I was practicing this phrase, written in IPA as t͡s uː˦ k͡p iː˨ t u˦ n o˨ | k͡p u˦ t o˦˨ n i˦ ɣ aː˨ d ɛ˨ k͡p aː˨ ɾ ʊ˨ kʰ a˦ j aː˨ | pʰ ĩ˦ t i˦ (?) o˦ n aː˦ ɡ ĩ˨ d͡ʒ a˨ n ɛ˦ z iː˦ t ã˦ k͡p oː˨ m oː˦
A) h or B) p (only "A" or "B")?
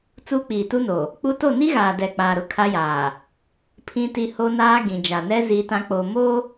A